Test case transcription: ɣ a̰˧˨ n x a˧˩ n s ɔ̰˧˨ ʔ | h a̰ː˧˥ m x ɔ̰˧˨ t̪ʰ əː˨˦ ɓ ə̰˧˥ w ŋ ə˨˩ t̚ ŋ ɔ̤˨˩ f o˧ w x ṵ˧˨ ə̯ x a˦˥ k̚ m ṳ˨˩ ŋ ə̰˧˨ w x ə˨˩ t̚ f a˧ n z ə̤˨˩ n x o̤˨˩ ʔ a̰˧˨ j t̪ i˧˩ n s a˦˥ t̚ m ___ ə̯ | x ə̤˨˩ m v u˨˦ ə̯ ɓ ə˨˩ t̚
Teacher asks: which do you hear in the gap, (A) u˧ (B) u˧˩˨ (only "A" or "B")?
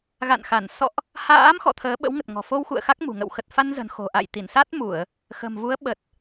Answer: B